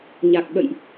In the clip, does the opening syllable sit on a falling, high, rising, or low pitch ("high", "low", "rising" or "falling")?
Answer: low